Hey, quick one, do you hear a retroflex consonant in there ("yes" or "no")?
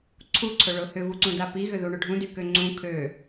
yes